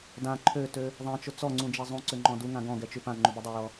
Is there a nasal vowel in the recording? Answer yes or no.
yes